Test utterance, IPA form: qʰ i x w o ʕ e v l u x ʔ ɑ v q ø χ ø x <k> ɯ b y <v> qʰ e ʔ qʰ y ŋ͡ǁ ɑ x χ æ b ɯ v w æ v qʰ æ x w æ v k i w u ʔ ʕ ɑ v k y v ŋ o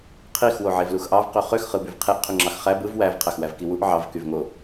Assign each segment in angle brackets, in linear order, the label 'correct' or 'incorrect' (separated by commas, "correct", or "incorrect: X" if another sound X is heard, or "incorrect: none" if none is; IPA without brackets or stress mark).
incorrect: χ, correct